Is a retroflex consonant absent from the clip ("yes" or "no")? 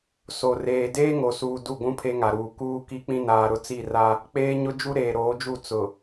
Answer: yes